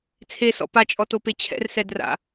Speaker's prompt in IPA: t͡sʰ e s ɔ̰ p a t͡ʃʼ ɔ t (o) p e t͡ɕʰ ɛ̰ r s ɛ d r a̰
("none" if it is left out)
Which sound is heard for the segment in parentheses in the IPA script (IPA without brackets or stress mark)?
o